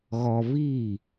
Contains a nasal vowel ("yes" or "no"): no